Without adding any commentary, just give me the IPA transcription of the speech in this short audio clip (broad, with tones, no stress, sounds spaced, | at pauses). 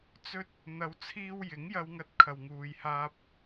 t͡s ɵ˥ t̚ | n̪ ɐ˨˧ w t͡sʰ iː˧ w j ɪ˨˥ ŋ j ɐ˧ w ŋ ɐ˧ t̚ kʰ ɐ˨ w ŋ uː˨ j h aː˧ p̚